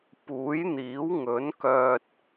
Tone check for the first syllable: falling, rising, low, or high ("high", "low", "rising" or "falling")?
rising